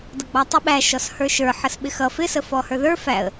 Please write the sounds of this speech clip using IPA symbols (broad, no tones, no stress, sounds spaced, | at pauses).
d ʌ ɡ͡b ɑ tˤ i ɓ æ ʃ ɔ s h ə˞ ʃ ə˞ ħ ə s ɓ ɪ x ʌ f ɪ s ə f ɔ h ə˞ ð ə˞ f æ ə̯